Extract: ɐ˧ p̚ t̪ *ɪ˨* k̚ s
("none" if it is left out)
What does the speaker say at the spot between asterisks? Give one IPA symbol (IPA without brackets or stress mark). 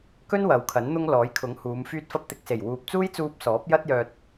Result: ɪ˨